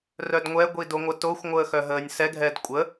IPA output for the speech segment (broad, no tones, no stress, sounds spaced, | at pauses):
r œ d ŋʷ ɛ ɡʷ i d o ŋʷ ə t o xʷ ŋʷ əː x œ ɦ əː nʲ s ɛ ɡʱ ɛ d kʷʼ ə